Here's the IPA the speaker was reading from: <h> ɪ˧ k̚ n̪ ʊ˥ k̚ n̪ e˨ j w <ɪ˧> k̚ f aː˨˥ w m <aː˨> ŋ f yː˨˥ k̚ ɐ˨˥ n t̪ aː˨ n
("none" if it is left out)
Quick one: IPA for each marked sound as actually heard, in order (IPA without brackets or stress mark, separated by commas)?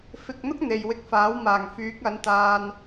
f, ɪ˧, aː˨˩